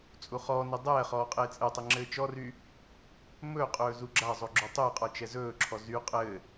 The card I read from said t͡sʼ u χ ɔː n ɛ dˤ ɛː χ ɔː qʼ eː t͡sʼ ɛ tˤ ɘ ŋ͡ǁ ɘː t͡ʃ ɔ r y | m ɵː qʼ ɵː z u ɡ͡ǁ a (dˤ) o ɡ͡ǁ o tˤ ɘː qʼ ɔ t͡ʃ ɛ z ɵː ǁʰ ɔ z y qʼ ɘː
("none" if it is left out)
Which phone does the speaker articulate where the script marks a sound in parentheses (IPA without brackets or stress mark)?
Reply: zˤ